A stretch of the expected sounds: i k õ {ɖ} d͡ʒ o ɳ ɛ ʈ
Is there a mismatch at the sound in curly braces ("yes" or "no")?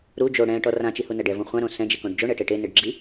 no